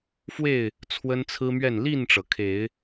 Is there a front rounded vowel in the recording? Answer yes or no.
no